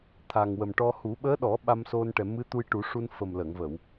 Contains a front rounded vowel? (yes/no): no